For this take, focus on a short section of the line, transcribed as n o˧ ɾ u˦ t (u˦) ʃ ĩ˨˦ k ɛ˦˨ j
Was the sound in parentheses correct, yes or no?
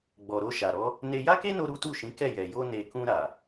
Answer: no